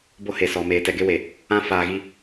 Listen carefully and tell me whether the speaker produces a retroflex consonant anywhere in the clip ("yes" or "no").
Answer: no